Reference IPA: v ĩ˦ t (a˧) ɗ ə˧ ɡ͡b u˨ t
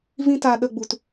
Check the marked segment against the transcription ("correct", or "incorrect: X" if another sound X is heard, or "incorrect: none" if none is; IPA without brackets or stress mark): correct